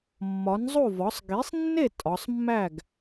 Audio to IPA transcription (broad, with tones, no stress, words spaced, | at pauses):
mːɒ˩˥nzˤo˥˩vɒ˩˥sˤ ɡi˩˥sˤnːe˥˩ tʼɒ˩˧sˤmːæ˥˩ɡ